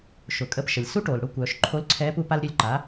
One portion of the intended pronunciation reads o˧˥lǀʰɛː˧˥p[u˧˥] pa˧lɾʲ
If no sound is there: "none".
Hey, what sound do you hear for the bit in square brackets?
u˧˥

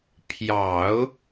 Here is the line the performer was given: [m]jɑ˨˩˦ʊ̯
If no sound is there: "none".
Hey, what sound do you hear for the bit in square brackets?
pʰ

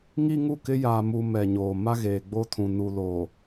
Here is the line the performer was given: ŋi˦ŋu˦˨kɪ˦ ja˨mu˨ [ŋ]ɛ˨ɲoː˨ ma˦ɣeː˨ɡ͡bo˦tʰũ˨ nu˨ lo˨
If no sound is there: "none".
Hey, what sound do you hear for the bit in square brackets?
m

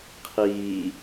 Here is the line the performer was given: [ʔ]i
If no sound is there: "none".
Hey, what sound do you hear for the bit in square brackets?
qʰ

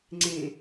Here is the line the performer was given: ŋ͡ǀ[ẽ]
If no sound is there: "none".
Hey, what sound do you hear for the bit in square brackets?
ẽ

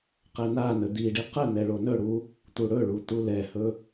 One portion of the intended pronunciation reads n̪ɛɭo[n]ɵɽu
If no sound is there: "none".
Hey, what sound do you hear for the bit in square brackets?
n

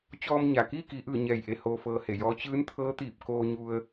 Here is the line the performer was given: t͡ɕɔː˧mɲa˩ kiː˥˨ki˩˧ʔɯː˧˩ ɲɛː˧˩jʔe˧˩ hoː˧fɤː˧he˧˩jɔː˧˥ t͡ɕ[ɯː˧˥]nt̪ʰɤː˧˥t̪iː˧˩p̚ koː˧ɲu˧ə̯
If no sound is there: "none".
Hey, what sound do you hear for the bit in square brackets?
ɯː˧˥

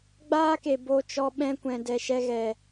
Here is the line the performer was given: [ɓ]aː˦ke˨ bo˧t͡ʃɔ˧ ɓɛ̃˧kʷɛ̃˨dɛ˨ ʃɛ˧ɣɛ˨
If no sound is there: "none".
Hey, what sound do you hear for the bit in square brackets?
ɡ͡b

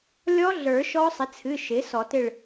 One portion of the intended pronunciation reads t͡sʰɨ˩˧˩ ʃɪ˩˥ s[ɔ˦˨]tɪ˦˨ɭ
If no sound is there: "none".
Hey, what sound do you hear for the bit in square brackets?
ɔ˨˩˦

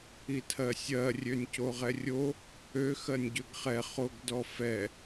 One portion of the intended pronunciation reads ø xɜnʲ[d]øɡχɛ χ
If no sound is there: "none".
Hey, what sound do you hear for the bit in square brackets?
ɟ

